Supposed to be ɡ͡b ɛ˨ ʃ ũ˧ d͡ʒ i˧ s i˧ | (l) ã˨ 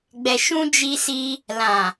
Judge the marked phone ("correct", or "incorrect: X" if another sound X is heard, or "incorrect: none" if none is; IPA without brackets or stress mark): correct